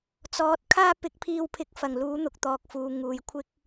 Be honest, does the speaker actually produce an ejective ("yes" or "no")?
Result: no